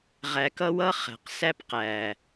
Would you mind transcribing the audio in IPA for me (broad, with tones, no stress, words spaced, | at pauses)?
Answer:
ʁæ˨kʌ˧wʌ˧ χæ̤˨qsæ˦pqæ˨